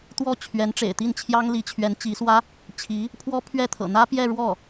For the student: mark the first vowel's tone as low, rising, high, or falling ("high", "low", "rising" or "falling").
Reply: falling